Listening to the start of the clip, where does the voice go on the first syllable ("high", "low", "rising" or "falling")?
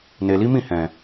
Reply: low